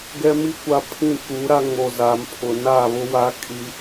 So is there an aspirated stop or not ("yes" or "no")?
yes